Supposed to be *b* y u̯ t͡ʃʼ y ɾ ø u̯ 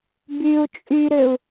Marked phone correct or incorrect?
correct